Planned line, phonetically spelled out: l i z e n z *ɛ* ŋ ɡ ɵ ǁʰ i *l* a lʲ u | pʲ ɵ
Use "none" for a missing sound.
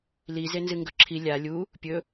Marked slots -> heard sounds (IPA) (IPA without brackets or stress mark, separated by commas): ɨ, lʲ